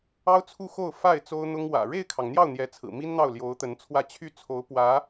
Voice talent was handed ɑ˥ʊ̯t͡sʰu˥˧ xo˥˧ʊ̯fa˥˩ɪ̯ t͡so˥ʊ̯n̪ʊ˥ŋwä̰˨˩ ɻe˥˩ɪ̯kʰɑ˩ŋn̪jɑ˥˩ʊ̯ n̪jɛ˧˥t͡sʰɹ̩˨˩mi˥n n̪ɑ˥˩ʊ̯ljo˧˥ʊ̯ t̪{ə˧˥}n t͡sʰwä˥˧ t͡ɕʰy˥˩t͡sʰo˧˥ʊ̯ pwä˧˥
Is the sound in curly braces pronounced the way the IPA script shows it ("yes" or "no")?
yes